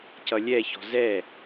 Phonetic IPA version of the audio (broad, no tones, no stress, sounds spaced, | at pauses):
c ʌ lʲ ɛ ç ɔ̤ z ɛ